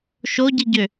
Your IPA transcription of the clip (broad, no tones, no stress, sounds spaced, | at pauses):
ʃ o ɟ i ɟ ø